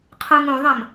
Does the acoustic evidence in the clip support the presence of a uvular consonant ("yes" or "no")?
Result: yes